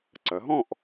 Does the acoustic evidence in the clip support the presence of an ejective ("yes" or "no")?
no